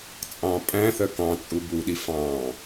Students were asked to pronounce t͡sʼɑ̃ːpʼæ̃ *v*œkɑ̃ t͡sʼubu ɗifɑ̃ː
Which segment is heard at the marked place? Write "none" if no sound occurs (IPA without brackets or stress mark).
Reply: θ